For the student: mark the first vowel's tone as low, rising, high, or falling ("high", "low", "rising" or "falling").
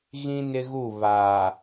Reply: high